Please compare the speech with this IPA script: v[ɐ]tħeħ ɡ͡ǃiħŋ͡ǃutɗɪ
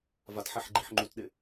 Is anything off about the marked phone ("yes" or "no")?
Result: yes